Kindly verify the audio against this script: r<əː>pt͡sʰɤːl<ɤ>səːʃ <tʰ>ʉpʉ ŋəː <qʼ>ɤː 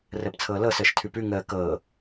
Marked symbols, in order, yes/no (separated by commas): yes, yes, yes, no